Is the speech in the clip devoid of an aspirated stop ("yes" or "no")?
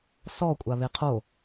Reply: no